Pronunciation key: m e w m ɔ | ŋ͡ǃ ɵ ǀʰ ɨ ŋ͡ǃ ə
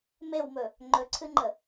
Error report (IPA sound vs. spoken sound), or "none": ɔ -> ɵ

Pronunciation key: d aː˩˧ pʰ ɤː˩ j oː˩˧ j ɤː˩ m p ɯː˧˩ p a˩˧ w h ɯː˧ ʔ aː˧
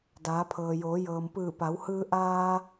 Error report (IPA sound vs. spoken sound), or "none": none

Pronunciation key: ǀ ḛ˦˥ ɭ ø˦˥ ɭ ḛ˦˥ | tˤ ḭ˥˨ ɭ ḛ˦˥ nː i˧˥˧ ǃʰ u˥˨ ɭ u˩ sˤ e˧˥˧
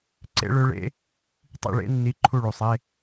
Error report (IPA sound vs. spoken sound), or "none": none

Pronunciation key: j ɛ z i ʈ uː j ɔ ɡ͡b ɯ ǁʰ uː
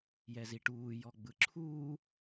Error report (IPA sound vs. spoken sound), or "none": none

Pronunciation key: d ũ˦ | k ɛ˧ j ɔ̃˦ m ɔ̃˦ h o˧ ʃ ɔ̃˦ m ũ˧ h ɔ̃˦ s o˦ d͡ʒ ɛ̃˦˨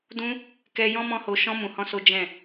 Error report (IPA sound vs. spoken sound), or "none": none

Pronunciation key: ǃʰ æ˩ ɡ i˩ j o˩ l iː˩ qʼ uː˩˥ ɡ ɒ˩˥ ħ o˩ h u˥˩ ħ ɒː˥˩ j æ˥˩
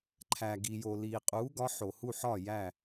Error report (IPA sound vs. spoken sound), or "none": none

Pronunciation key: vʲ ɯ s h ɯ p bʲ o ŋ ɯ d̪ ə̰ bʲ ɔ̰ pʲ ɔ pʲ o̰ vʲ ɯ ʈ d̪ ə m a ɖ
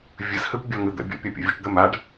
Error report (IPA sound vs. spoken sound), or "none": none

